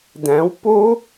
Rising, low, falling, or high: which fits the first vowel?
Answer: rising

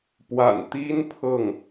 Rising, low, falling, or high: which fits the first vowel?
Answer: low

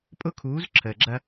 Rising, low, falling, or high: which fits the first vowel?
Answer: high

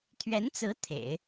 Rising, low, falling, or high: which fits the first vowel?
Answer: rising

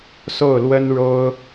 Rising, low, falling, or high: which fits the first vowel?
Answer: falling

